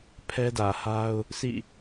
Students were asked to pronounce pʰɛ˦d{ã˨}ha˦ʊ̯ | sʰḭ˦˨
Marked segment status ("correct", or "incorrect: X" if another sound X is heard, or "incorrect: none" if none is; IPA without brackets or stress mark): incorrect: ä˨